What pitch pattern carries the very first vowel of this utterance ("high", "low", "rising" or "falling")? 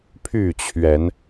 falling